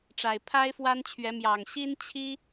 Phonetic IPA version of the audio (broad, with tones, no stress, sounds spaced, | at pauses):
ʈ͡ʂ a˨˩ ɪ̯ pʰ a˦ ɪ̯ f w a˦ n t͡ɕʰ ɥ ɛ˨˦ m j ɑ˨˩ ŋ ɕ i˦ n t͡ɕʰ i˦